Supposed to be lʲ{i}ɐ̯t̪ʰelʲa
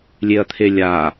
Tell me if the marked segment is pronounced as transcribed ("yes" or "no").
no